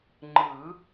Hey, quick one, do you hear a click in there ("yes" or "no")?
yes